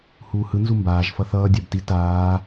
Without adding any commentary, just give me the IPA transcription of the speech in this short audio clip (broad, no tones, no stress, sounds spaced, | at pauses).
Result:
h uː h ɯ n z u m b aː ʒ f ʌ θ ʌː dʲ a b t i t aː